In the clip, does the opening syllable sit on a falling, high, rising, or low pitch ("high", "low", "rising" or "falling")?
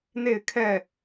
falling